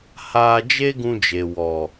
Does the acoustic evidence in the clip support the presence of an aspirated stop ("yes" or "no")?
no